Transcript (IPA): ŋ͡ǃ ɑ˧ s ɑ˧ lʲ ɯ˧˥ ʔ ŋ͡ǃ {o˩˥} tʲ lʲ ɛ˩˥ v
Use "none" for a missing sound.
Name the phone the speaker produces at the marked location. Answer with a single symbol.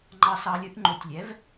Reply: o˩˥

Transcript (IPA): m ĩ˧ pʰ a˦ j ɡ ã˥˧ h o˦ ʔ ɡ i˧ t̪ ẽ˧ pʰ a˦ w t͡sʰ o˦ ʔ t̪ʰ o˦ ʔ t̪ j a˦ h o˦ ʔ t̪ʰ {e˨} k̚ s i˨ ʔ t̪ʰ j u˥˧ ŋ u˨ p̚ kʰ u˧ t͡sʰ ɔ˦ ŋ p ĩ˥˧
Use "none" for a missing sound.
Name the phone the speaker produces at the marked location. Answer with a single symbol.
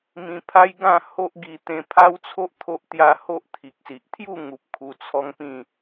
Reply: i˨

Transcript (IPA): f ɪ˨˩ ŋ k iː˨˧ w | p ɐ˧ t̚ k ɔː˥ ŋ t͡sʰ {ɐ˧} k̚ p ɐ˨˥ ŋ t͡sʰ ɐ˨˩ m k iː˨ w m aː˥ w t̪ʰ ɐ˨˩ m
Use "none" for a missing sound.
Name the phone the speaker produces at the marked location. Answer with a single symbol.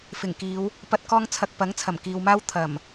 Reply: ɐ˧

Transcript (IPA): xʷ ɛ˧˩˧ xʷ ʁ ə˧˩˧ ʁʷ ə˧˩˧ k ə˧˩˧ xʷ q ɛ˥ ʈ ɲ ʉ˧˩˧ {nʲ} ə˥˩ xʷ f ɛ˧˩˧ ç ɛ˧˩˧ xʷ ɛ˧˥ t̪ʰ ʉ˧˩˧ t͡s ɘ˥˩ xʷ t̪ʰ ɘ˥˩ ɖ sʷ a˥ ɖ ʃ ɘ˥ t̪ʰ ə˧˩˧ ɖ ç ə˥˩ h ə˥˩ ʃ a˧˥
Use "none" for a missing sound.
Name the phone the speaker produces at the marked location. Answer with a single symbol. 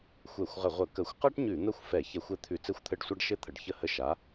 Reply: n̪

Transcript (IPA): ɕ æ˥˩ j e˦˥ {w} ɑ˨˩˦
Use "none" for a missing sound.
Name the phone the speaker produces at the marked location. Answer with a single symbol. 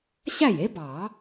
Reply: b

